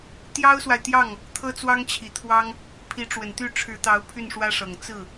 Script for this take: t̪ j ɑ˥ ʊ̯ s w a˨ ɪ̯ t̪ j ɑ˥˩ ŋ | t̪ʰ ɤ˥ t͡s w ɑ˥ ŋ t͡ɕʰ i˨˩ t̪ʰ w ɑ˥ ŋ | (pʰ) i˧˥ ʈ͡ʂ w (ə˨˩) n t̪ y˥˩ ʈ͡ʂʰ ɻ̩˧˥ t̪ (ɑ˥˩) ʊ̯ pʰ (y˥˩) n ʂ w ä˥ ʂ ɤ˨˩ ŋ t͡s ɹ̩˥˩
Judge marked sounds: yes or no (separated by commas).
yes, yes, no, yes